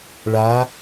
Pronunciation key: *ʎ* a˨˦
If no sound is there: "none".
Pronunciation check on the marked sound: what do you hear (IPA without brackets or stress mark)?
ɭ